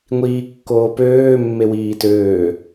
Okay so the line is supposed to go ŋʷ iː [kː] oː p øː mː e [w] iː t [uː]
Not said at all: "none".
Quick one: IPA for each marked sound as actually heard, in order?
kː, w, øː

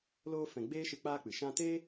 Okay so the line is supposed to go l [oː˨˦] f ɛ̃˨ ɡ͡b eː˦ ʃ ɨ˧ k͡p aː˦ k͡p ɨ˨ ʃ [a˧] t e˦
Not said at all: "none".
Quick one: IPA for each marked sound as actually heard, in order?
oː˧, ã˧

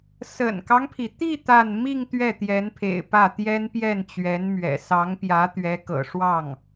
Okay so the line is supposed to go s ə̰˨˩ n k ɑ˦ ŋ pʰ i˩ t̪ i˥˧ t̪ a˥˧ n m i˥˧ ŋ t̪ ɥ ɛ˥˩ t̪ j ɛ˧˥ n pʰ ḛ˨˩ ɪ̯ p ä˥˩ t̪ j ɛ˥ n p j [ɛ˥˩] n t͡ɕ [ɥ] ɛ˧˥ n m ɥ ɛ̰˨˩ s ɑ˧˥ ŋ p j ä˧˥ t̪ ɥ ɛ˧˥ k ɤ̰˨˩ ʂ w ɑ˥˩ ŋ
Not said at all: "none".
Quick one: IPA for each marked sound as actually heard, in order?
ɛ˥˩, ɥ

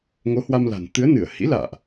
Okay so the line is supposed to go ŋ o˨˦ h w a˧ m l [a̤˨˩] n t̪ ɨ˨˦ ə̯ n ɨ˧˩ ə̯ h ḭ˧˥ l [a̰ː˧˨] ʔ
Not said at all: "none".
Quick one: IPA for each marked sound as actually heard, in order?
a̤˨˩, a̰ː˧˨

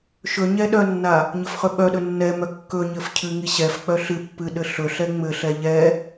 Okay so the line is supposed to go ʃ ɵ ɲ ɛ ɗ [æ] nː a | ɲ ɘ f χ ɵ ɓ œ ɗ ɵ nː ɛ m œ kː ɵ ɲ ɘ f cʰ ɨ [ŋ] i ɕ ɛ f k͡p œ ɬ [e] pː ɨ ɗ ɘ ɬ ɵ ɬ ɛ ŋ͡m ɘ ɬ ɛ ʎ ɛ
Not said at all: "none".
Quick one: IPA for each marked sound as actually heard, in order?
œ, ŋ, ɨ

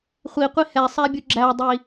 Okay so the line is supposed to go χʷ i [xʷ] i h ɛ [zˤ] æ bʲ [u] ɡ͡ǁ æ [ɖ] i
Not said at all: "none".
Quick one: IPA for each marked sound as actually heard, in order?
qʷ, sˤ, u, dˤ

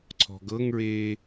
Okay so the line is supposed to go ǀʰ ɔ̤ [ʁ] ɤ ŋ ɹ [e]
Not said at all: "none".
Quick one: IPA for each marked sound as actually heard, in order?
ɡ, eː

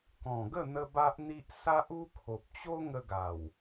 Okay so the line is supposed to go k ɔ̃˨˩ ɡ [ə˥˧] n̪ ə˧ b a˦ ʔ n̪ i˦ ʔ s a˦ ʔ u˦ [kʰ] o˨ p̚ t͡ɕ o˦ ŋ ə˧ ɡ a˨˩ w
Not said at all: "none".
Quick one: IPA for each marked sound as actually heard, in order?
ə˥˧, kʰ

